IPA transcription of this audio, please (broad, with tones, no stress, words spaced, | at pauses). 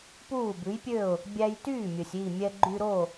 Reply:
puː˥˩bʉ˩˥jpʲø˥˩ʊ̯ | bʲæ˧jtyː˥˩mʲɵ˩sʲ i˥˩ mʲɛ˧ɡ͡ǃy˧ɾo˥˩